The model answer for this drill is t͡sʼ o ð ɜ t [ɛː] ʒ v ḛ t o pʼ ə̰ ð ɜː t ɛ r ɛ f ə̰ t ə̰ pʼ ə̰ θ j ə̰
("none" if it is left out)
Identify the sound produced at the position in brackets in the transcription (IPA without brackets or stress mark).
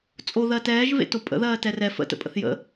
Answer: ɛː